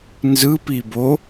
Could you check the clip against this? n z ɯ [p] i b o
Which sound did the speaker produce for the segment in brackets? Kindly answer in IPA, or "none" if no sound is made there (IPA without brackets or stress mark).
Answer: p